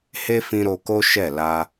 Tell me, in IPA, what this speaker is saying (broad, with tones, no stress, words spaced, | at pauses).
he˦fĩ˧ ɾo˧ko˦ ʃɛ˦˨la˧